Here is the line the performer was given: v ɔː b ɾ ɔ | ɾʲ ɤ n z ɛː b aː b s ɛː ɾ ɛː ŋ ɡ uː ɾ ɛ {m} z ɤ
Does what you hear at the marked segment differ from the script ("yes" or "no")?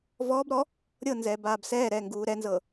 yes